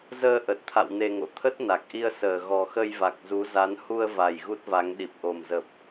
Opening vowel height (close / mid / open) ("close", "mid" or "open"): mid